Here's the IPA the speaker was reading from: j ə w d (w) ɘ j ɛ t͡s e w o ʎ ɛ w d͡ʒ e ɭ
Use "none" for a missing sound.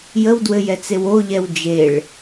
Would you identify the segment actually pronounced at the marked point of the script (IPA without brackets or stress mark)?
w